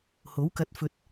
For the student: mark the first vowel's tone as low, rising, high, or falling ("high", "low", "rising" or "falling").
rising